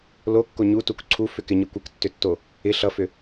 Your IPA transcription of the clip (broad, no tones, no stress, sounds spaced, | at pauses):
l o kː o ɲ u t u k ǀʰ u f ʏ k ɪ ɲ ɯ kʷ ɪ k tː ʏ tː o | ɪ ɬ ʌ f ʏ